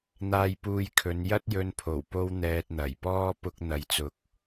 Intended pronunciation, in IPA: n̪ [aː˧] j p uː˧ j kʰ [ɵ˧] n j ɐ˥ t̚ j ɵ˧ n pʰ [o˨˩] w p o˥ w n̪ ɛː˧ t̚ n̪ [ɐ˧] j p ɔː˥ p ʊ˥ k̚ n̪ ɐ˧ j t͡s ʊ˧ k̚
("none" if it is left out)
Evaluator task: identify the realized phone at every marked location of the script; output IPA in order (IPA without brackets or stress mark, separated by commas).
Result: aː˧, ɵ˨˧, o˨˩, ɐ˨˩